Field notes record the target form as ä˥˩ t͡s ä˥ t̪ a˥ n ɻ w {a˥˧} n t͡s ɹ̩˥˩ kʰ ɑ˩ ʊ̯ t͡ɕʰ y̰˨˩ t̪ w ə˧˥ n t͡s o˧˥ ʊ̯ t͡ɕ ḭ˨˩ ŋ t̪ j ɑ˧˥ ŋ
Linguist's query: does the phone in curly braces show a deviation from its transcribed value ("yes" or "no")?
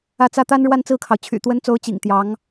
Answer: no